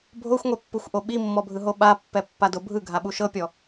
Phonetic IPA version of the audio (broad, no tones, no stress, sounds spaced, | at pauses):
bʱ o xʷ ŋʷ ɛ pː u xʷ ʔ o ɓ i mː ɔ bʱ ɯ ɦ o ɓ a pː ɛ pː a d o bʱ ɯ ɡʱ a ɓ u ʃ ɤ pʲ ɔ